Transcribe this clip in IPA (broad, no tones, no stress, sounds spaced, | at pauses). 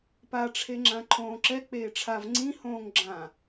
p a ʈ͡ʂʰ e ŋ͡ǁ ã ǃʰ õː ǁ ɛ k͡p eː ʈ͡ʂʰ a v ŋ͡ǀ ĩ h õː ŋ ɡ͡ǁ ã